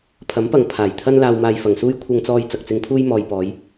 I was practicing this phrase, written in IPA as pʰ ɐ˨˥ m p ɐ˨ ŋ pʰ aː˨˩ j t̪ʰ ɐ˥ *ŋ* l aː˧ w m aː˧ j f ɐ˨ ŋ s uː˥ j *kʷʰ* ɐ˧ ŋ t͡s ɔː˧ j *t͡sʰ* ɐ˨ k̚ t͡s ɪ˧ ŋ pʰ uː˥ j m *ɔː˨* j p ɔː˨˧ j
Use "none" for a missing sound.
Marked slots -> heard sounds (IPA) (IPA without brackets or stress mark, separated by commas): n, kʷʰ, t͡s, ɔː˧